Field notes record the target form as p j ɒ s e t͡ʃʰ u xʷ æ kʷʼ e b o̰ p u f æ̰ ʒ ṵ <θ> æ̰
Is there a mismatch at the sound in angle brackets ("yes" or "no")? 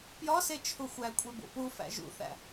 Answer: no